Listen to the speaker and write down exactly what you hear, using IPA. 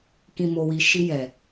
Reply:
k ĩ˨ m o˨ w i˨ ʃ i˧ j ɛ˨

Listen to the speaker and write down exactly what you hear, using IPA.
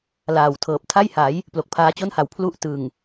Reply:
l aː˨˩ w tʰ ɤː˨˩ p̚ tʰ a˥˩ j h a˩˦ j | p l o˨˩ k̚ pʰ aː˦˥ t͡ɕ o˥˩ n h a˨˩ w pʰ l u˥˩ ʔ t ɯ˨˩ ŋ

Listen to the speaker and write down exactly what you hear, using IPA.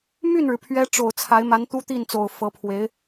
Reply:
m y˥˩ n ɻ ɻ̩˩ pʰ ɥ ɛ˧˥ ʈ͡ʂ o˨˩ ʊ̯ t͡sʰ a˧˥ ɪ̯ m a˧˥ n t̪ u˥ t̪ i˥˩ n t͡s o˨˩ ʊ̯ f ɤ˧˥ pʰ w e˧˥ ɪ̯

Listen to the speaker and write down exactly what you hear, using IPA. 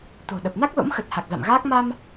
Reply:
t̪ o̤˨˩ ɗ ə˨˩ p̚ n a˦˥ k̚ l o̰˧˥ m x ə˨˩ t̚ h a˨˩ k̚ z a̰˧˨ m ɣ aː˦˥ k̚ m a˧ m

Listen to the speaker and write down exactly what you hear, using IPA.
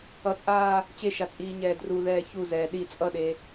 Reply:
ʌ t͡sʼ aː | t͡ɕ e ʃ a t͡sʼ iː ɲ ɛː d r u ð ɛː ç u z ɛː ɗ i t͡sʼ ʌ ɗ e

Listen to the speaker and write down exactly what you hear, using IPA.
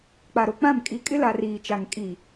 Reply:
k͡p a˨ ɾ o˨ k͡p ã˦˨ m kʼ i˨ kʼ ɪ˦ l a˨ r iː˨ t͡ʃ a˨ ŋ kʼ i˨

